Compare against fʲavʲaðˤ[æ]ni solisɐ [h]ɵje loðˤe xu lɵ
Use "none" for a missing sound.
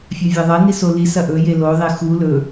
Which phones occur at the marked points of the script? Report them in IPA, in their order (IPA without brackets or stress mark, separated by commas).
ɐ, ʔ